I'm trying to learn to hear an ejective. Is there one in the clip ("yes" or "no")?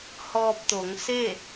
no